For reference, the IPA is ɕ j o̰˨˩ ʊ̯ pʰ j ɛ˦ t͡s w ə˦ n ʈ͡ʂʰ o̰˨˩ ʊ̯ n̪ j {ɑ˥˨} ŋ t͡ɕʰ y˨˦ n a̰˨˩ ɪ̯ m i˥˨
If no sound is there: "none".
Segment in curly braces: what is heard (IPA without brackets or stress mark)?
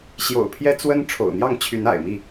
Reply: ɑ˥˨